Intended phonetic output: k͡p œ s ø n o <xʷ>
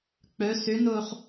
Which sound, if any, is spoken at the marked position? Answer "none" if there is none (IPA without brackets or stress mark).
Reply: χ